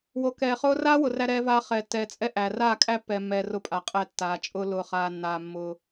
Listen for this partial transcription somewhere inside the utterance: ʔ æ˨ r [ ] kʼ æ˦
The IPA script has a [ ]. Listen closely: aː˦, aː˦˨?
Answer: aː˦˨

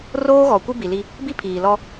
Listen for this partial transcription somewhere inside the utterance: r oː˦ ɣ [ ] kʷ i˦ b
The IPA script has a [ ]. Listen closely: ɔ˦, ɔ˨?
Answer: ɔ˨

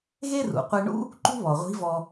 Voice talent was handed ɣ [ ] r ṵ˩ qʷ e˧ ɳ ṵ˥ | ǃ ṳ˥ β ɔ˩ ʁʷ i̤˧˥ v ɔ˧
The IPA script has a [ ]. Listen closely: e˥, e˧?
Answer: e˥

